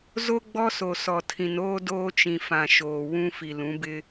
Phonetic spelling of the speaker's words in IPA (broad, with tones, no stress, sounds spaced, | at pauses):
z o˦ ɡ͡b ɔ˦ s o˨ s ɔ˨ tʰ ĩ˨ n oː˦ d oː˦ t͡ʃ ĩ˨ f ã˨ ʃ oː˨ w ũ˦ f i˨ l ũ˨˦ b ɪ˦